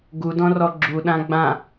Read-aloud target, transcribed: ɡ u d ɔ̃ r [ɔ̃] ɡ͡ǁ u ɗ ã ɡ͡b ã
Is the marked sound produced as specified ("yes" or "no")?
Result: no